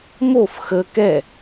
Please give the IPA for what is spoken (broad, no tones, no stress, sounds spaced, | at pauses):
m o f x ə k ɛ